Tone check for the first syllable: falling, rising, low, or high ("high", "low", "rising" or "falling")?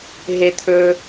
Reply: low